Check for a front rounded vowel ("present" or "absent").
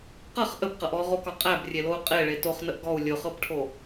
absent